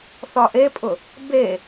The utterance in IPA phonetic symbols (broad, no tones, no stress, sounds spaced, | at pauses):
θ ɒ ʔ e pʼ ʊ | b e